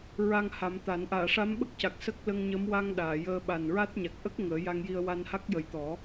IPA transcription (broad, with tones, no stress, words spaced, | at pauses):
ɹa˧ŋha˨˩˦mt̪a˨˩˦n ʔaː˨˩˨ʂa˧˥mɓə˦˥k̚ca˨˩k̚ sə˦˥k̚lə˧ŋɲə˧˥m wa˧ŋ ɗaː˨˩˨jəː˧ ɓa˨˩nɹa˦˥t̚ ɲa˨˩k̚ʔə˦˥k̚ ŋəː˨˩˦ja˧ŋji˧ə̯ wa˧nha˦˥k̚jə˨˩jt̪ɔ˨˩˦